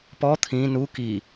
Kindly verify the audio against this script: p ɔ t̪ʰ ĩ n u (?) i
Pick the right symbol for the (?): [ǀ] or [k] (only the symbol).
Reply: k